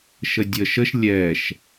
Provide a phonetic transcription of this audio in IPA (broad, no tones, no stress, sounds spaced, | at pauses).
ʃ ə dʲ ə ʃ ə ʃ lʲ ɛ ʃ